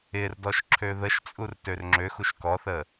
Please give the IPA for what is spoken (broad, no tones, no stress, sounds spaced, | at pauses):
ɪ r d ɔ ʃ ǁʰ ø ð ə ʃ t͡sʼ u r t ø r ŋ͡ǁ ø x u ʃ k ɔ θ ə